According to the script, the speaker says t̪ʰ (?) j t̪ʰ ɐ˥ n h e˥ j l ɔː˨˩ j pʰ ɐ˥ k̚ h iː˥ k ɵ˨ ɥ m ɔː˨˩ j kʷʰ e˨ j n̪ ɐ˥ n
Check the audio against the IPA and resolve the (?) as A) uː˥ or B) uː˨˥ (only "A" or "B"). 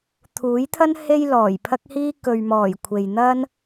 B